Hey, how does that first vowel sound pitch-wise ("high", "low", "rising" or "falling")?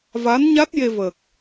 rising